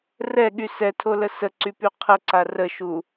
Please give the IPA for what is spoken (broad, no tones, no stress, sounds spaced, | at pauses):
r ɛ ɠ y s ɛ tʰ o l ə s ə ǀ y p y qʰ ə ǀ a r ə ʃ u